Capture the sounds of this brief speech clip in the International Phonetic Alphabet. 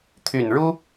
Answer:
t̪ʰy˨˩nɻu˦

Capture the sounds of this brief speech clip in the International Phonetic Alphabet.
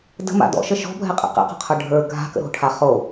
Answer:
də̤ma̰ dɔ̰ʃə ʃɔ̤bʱɛqʼɛ̰ qɛ̰qɔ̤qʰə˞ ɖʱə˞ ɡʱa̤kə̰ɾo̤ʈʰa χo

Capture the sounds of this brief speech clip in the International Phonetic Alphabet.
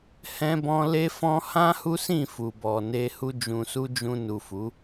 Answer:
hɛ̃˦bɔ̃˦ le˦fɔ̃˦ hã˦hu˦sĩ˦˨ fu˨bɔ˨ ne˧hu˧ d͡ʒũ˨su˧ d͡ʒũ˧nu˨fu˨˦

